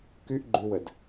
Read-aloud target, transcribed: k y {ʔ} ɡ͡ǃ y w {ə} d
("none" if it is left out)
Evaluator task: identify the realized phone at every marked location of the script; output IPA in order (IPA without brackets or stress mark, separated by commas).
ʔ, ə